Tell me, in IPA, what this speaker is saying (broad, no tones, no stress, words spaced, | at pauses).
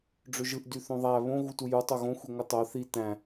ɖ͡ʐøʒɯʔ dyθõðˤæ βõ ɣutuju tˤoɣõ xʷiŋʷɯtˤo θi tæ̃